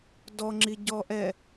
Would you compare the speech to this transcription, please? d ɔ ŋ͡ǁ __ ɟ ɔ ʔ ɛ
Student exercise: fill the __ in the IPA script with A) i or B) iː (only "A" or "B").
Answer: A